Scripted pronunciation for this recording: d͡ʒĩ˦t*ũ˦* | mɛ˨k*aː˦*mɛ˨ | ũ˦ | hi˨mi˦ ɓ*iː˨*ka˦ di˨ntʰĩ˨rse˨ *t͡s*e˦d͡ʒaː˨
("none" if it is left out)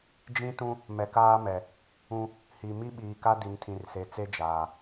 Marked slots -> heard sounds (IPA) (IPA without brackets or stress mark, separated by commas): ũ˦, aː˦, iː˨, t͡s